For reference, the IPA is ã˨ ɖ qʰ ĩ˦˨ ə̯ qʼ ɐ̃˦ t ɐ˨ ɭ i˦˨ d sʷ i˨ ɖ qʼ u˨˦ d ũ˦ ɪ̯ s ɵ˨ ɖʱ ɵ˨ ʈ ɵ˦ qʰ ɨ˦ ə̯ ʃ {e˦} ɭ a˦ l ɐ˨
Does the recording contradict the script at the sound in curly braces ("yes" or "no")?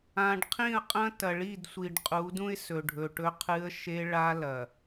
no